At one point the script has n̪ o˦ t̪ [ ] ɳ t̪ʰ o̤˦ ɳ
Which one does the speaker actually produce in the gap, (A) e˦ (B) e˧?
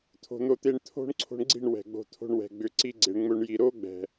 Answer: A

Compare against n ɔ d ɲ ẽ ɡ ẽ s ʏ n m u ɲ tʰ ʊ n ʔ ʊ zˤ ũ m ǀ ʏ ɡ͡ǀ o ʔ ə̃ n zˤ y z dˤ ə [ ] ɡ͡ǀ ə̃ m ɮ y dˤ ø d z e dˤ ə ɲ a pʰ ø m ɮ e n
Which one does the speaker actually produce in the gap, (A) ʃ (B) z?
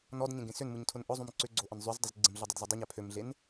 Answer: B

